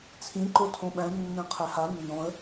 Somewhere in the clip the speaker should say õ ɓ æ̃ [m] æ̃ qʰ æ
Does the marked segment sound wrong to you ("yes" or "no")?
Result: yes